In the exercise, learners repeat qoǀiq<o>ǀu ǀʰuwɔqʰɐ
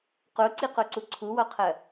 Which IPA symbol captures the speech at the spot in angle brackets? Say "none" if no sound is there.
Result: o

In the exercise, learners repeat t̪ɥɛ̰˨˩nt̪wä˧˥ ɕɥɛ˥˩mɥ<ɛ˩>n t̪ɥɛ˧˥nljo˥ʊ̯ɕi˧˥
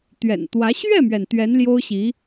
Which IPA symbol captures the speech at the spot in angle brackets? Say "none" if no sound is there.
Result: ɛ˩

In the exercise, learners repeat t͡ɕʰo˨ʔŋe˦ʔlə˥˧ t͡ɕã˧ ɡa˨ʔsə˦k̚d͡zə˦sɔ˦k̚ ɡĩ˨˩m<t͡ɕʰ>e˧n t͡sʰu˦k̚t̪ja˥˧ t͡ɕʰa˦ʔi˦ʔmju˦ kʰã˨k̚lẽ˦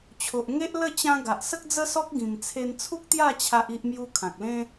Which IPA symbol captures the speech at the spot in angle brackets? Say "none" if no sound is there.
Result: t͡sʰ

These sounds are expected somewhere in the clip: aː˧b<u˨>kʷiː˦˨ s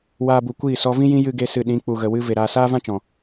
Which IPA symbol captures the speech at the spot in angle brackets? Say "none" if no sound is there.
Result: u˨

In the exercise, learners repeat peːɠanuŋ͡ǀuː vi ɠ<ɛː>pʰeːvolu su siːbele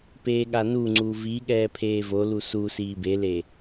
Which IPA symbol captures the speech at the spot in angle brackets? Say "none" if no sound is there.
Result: ɛː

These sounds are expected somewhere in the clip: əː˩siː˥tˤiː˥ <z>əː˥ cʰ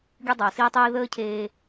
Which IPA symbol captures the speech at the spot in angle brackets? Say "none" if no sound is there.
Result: ð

